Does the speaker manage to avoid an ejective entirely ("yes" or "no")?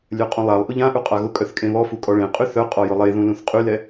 no